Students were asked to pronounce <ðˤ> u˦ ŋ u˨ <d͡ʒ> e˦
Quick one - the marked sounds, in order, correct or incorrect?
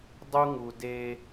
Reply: incorrect, incorrect

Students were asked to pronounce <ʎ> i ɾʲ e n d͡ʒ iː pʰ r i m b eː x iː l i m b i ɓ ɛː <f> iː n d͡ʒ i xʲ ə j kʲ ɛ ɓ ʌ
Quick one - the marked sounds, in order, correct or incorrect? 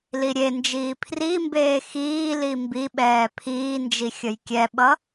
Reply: incorrect, incorrect

